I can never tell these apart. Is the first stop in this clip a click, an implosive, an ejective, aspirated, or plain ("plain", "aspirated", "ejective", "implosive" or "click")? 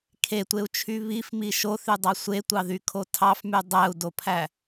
aspirated